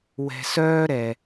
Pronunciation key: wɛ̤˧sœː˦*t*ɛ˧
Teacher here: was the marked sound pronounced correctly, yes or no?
no